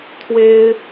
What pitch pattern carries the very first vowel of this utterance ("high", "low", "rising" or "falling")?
high